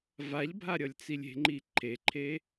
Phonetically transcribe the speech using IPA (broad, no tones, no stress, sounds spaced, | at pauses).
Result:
v a ʎ bʱ a ɾʲ ʌ lʲ t͡s i lʲ e̤ ŋ͡ǃ i ǃʰ e ǃʰ e